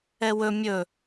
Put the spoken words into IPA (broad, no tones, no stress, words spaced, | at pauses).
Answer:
ɛwɵ mʲɵ